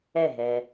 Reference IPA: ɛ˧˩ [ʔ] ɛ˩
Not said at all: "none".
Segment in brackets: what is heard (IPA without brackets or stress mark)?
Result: ɦ